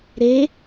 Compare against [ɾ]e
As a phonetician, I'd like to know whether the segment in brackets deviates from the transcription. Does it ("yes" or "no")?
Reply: no